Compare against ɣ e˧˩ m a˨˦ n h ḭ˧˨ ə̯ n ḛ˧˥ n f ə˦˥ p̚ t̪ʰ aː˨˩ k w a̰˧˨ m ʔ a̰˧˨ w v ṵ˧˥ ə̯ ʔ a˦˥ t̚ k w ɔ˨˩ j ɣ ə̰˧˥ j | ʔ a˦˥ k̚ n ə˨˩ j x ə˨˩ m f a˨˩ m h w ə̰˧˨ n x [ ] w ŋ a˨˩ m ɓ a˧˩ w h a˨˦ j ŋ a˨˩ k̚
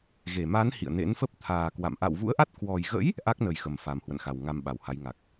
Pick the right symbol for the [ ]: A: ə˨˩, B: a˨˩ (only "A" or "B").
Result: B